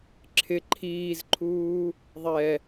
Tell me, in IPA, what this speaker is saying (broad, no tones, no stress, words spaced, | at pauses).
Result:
ǁʰɪ ǃʰiːzǃʰuː | ðˤɛ